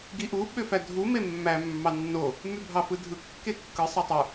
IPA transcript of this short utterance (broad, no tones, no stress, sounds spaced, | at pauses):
ɡ i ʔ u ɓ ø f æ dʱ u m e mː æ mː ɑ nː o | m y bʱ ɑ f ɯ dʱ ɯ kː e kː ɯ sˤ e tˤ u